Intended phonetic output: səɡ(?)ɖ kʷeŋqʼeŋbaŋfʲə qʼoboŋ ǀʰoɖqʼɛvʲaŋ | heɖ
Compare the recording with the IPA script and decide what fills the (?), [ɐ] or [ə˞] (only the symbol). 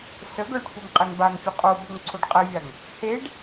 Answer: ə˞